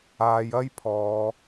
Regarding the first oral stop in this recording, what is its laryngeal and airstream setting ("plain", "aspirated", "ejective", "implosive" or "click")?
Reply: aspirated